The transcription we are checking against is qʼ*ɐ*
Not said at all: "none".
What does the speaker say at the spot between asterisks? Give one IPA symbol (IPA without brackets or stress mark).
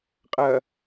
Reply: ɐ